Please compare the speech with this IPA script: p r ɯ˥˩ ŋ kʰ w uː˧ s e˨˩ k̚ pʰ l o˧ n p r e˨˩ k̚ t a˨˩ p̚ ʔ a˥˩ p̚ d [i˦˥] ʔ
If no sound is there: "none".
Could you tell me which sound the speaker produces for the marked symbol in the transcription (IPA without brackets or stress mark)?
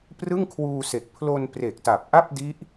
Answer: i˦˥